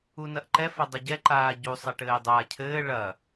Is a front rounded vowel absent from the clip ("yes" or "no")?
yes